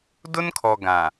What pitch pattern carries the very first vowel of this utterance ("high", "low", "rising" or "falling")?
high